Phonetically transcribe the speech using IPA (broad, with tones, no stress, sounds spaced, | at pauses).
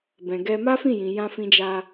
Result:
b ɛ̃˨ ɡ ɛ˧ m a˦ f ĩ˦˨ j ĩ˨ j ã˧ f ĩ˧ d͡ʒ a˧